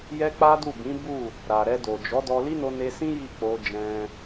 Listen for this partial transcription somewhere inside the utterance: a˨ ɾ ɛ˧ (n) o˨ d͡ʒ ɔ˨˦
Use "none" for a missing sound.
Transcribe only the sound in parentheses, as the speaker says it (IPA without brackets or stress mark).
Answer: d